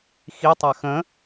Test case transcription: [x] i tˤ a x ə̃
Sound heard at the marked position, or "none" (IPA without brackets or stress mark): x